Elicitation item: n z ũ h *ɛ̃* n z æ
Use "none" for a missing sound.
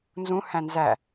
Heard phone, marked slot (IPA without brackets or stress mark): æ̃